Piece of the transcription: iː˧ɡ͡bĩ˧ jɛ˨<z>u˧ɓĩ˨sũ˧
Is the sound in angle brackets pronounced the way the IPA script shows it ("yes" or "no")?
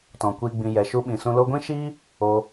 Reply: no